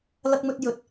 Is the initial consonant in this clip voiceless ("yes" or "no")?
no